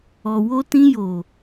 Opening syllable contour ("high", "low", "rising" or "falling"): low